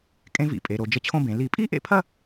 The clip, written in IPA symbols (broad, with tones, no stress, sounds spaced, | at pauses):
kʼ ẽ˥ v ḭ˧˩˧ pʼ e˩˧ ɾ o˩˧ d͡ʒ ə˧˥ t͡ɕʰ õ˥˧ b ẽ˩˧ l i˧˩˧ pʼ i˥ ʔ ḛ˥ pʰ ɐ˥˧